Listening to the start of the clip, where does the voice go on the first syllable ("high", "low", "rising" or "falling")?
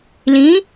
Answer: rising